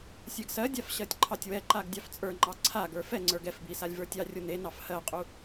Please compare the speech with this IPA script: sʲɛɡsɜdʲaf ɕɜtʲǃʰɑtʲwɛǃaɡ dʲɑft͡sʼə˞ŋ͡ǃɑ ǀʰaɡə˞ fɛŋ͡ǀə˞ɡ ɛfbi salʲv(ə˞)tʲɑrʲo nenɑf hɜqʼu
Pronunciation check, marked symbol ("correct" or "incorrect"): correct